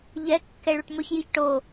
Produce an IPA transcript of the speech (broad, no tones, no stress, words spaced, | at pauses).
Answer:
ʎɛ kːɛɭuʈmɵçjiç ʈo